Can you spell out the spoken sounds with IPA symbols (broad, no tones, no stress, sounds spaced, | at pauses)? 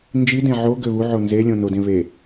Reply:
n d͡ʒ i d ẽ ʕ o ɡ ø β u ʕ o n z e lʲ õ n o d ẽ β e